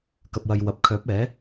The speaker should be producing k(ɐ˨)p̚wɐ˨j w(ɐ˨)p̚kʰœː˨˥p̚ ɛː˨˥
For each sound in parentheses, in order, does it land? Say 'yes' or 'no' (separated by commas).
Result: yes, yes